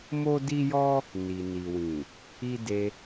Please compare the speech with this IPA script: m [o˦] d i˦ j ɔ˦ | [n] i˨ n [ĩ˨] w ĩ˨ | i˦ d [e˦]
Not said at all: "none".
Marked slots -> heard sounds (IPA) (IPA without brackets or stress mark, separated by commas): o˦, n, i˨, e˧